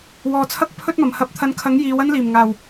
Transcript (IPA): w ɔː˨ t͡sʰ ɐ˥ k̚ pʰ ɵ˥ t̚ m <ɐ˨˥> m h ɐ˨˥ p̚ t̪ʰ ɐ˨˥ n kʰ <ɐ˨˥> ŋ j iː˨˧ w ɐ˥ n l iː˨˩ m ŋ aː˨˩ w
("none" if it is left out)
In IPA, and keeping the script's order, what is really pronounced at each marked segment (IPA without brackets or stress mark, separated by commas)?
ɐ˨˩, ɐ˨˥